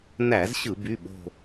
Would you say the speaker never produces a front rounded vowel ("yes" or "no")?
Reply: no